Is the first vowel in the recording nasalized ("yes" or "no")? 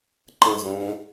yes